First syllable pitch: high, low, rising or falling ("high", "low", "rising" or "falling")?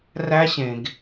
high